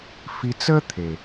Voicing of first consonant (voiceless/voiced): voiceless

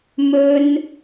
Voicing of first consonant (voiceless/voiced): voiced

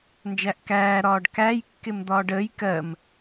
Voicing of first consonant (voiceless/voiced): voiced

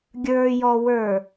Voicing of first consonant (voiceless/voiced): voiced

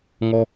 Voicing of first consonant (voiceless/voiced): voiced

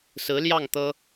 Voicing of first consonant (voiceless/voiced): voiceless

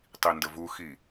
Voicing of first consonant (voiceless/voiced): voiceless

